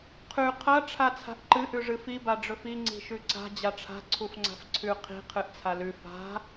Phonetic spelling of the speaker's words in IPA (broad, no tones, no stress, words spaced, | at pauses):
qʰʉ qʰɐ ʈ͡ʂʰat͡sʰa̤ʔǃɨ ʔʉʐɨfi baɖ͡ʐɵfi ŋ͡ǀi̤ʃʉǀa̤ d͡ʑaʈ͡ʂʰa̤ ǀʰufŋ͡ǀa̤fǀʰʉ qʰi̤ qʰɨʔt͡sʰalʉ fa̤